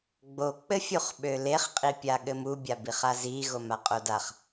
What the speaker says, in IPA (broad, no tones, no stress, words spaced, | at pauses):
ɡ͡bo k͡pɘfʲuχɓøleχ qʼipʲaɠɘmu bʲabiχazi ɣomaqʼodaχ